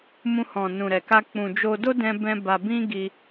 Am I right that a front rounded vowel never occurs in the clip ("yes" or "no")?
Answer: yes